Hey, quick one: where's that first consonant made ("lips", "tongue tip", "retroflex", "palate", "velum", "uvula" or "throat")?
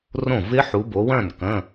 tongue tip